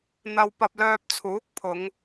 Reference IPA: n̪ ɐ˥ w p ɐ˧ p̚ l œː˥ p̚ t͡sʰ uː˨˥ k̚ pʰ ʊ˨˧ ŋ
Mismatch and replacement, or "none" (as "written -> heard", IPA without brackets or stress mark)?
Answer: œː˥ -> œː˧